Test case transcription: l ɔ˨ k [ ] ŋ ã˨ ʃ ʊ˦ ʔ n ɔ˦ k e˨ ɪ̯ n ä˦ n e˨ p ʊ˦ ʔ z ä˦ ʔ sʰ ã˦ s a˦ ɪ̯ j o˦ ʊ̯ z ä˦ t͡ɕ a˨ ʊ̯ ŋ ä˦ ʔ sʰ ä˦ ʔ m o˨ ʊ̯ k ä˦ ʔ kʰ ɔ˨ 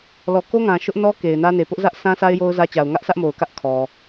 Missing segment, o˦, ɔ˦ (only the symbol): o˦